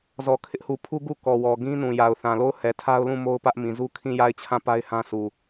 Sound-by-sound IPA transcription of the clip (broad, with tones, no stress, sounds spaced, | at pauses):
z ɔ˨ kʰ ɪ˦ ʔ h u˨ pʰ u˦ ɡ u˦˨ k ɔ˨ w ɔ˨ ɡ ĩ˦ n ũ˨ j a˨ ʊ̯ θ ã˨ l o˦˨ ʊ̯ h ɛ˨ tʰ a˦ ʊ̯ l ũ˦˨ m o˦ ʊ̯ p ä˦ ʔ m ĩ˨ z u˦ kʰ ĩ˦˨ j a˦˨ ɪ̯ t͡ɕʰ ã˦˨ p a˦ ɪ̯ h ã˦ s u˨